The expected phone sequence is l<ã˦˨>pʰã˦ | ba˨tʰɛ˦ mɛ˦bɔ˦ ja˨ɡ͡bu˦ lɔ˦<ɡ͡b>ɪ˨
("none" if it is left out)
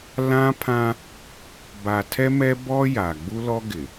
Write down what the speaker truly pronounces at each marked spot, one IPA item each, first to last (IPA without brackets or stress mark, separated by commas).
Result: ã˦, ɡ